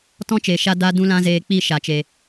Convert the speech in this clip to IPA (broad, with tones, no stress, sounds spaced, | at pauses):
t ɔ̃˦ t͡ʃ e˨ ʃ a˦ d a˦ d ũ˦ l ã˦ z eː˧ k͡p i˦˨ ʃ a˨ t͡ʃ e˨